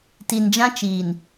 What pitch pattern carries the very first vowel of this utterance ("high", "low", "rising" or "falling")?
low